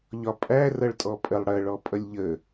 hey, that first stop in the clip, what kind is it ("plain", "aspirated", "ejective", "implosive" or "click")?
ejective